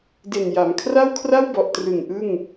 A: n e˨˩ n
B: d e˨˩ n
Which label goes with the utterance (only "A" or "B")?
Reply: B